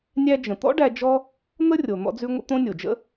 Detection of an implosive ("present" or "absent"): absent